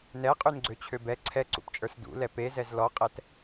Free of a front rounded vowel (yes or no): no